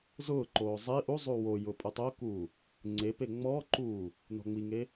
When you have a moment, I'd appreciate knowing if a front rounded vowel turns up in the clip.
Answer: no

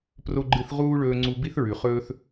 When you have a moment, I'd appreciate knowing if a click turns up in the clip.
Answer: yes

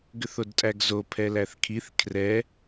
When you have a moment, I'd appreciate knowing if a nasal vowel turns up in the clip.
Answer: no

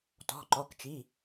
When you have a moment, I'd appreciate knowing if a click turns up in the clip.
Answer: yes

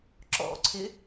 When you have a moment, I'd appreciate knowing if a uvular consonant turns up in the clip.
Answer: no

